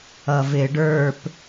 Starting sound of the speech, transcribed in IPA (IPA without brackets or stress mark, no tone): ʌ